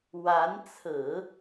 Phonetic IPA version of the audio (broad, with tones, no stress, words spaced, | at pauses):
wa˧˥nt͡sʰɹ̩˨˩˦